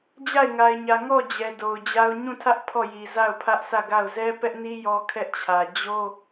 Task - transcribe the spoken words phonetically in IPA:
d͡ʑ a˦˨ ɪ̯ ŋ a˨ ɪ̯ ɲ ä˨ ŋ ɔ˦˨ d͡ʑ ɛ˨ d o˨ ʊ̯ d͡ʑ a˦ ʊ̯ ɲ ũ˦˨ tʰ ä˦ ʔ pʰ ɔ˦˨ j i˨ z a˦˨ ʊ̯ pʰ ä˦ ʔ s ä˦˨ ɡ a˦˨ ʊ̯ z ɛ˦ p ɛ˦ ʔ n i˦ j ɔ˦ kʰ ɛ˦ ʔ t͡ɕʰ ä˨ d͡ʑ o˦

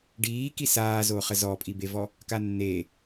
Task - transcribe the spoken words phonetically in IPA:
ɖ iː k i s aː z o χ ə z ɔ pʼ i b e v ɔ | k a nː e

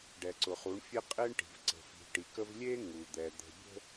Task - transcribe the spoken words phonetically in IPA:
ɖ ɛ˨ ǀ ʊ˨ χ u˨˦ ɳ fʲ e˦ qʼ e˦ ɳ ʈ i̤˨ v ǀ ə̤˨ f i̤˨ ʈ i˨ k ə˦ v lʲ e˦ ŋ u˨ d̪ ɛ˨ d̪ ə̤˨ bʲ ə̤˦

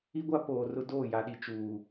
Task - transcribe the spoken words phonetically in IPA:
i˦ ɡʷ a˦ p oː˨ r ʊ˦ d oː˦˨ j a˨ ɗ i˨ t͡ʃ uː˨

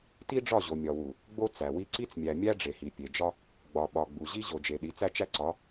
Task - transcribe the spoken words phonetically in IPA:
t i˦ ɖ͡ʐ ɒ˦˨ ʑ o˨ mʲ ɒ˨ w u˨ | ɡ͡b o˦ t͡s æ˨ w i˦ ǀ i˦ t͡s mʲ æ˨ mʲ æ˦ ɖ͡ʐ e˨ h i˨ pʲ e˨ d͡ʒ ɒ˦ | ɡ͡b ɒ˨ ɓ ɒ˨ ɡ͡b u˨ ʑ i˦ ʑ o˨ d͡ʒ e˨ ɗ i˨˦ t͡s æ˦ t͡ʃ æ˦ ǀ ɒ˨˦

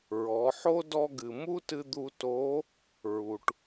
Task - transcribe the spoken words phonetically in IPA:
ɹ ɔ˩˧ ħ o˥ d ɔ˧ ɡ ɨ˩ m u˥ t ɨ˧ d̪ u˧ t o˧˥ | ɹ u˩ ʈ

